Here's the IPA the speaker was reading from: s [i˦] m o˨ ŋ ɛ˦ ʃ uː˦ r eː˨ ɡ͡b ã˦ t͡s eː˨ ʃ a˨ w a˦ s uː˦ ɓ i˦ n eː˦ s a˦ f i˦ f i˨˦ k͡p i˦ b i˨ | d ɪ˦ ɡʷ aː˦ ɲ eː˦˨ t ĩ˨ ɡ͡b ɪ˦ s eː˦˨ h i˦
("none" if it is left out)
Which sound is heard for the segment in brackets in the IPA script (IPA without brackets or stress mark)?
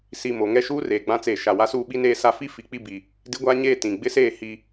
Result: i˨